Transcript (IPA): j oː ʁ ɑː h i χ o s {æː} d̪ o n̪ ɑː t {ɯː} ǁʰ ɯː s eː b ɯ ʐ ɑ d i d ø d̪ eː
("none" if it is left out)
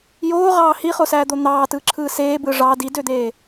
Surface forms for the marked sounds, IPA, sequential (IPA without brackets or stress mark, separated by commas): æː, ɯː